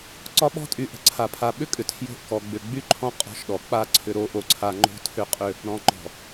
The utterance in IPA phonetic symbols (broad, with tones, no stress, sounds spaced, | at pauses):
ǀ ɒ˦ ɓ ɔ̤˦ tʼ y˨ ʔ ə̤˨ ǀʰ a˨ pʰ a˨ ɓ ʏ˦ kʼ ʏ˨ tʰ j o̤˦ ʔ k ɔ˨ ɡ͡b ʏ˨ ɡ͡b y˦ ǃʰ ɔ̃˦ qʼ ɔ̤˦ ʃ ɗ ɔ˨ k͡p a˦˨ ǀʰ ʏ˨ ɾ o˨˦ ʔ o˨ ǀʰ a˨ ŋ͡ǃ o̤˦ tʰ ʏ˦ qʼ ʏ˦ | ɾ ɔ̃˨ ŋ͡ǃ ɔ̤˨